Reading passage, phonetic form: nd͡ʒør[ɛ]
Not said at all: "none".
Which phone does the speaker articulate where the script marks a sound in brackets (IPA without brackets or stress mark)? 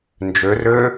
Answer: ø